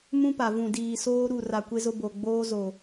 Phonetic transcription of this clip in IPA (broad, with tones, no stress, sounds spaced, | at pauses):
m ũ˦ p a˨ v ũ˨ d iː˨ s oː˦ ɾ u˦˨ r a˨ kʷ e˦ z ʊ˦ b o˨ ɡ͡b oː˦ z o˨